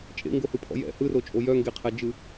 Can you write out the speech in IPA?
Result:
t͡ʃʼḛŋɡohɯpʰɔ̰ jɛ̰ hɯrot͡ʃʼo jœŋɡeqʰɛd͡ʒɯ

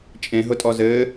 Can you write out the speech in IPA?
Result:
t͡ʃʼẽɦʊtʼɔ zɘː

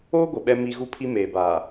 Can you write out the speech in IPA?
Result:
oː˦ɡʷɪ˨ ɓɛ˦mi˦ ɣu˦pʰi˦ meː˨baː˨

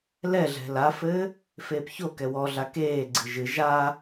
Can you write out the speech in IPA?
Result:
lɛɮɛ̤ lafɘː | feːpçokɛ wɔɮa keːɡ͡ǀɨ ʒɨ ʒa

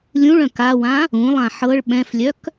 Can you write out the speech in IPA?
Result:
lʲũɭœ̃ kawã | ũlˠã ħɤɭ ɓɛ̃flʲœk

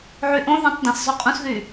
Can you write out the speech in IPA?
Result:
ʕyʔõ ðĩtˤdɐ̃s zˤoqʼũsðy

